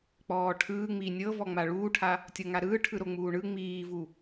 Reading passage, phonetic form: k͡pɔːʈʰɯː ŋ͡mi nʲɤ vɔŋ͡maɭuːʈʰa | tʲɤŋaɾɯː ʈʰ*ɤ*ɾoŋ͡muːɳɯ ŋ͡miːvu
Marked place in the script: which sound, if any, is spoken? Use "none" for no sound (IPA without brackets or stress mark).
ɯ